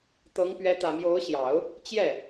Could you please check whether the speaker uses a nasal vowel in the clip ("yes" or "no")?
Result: no